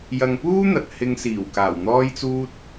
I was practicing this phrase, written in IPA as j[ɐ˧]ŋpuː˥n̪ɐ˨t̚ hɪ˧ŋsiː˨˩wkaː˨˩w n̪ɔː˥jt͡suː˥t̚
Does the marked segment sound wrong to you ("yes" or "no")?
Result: no